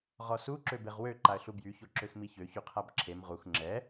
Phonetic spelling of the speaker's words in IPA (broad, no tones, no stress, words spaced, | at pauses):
ʁɔsu ǁøbeʁwø ǃaə̯ɬubjy çoǁøxmiçø çyqʰabǁʰem ʁux ŋ͡ǁɛ